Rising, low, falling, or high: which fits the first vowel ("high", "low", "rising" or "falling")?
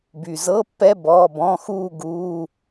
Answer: low